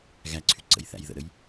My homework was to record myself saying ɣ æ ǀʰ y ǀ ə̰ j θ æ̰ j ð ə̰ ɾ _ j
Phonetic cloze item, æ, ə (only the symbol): ə